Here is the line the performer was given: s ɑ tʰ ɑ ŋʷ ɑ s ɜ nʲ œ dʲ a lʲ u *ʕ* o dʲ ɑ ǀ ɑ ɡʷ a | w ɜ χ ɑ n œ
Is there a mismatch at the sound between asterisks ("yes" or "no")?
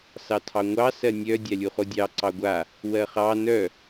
yes